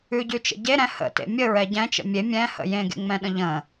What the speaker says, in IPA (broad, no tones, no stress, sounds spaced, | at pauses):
ʉ ɟ ʉ t͡ʃ ə̰ ɟ e ɾ ɛ̃ h ə̰ t ḛ mʲ ə ɹ ɛ ɟ ɛ̃ t͡ʃ ə̰ mʲ e mʲ ɛ̃ h ə̰ j ẽ ɡ ḛ ŋ͡m ɛ̃ ɗ ə̃ ʎ ə̃